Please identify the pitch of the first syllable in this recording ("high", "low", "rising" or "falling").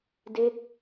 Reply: falling